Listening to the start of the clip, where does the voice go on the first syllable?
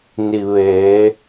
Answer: low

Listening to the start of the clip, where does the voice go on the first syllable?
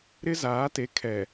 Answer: high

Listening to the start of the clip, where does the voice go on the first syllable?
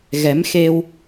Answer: rising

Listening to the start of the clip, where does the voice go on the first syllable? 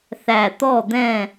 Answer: low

